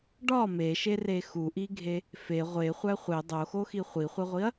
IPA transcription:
ɖ ɒ m e ʃ e r e x u ʔ i ɡʱ e | f e ʁʷ e χʷ æ χʷ e dˤ o x o x i χʷ i χʷ e ʁʷ i ɐ̯

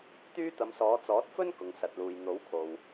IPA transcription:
t̪ yː˥ t̪ ɐ˨˧ m s ɔː˨˧ t͡s ɔː˨˥ t̚ f ɵ˥ n k ʊ˨ ŋ s ɐ˨ t̚ l uː˨ j n̪ o˨˥ w kʰ o˨ w

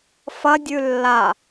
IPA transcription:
f ɐ dʲ ʉ lː a

